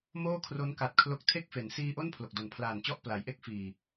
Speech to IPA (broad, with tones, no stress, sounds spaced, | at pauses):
m oː˥˩ kʰ r o˦˥ n k a˨˩ t̚ kʰ l o˦˥ k̚ tʰ e˥˩ k̚ f e˩˦ n s iː˧ ʔ o˥˩ n pʰ l o˨˩ k̚ d o˨˩ n pʰ l aː˨˩ n t͡ɕ ɔ˥˩ ʔ p l a˩˦ j ʔ e˥˩ k̚ f iː˨˩